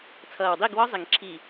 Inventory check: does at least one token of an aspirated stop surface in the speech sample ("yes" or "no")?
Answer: yes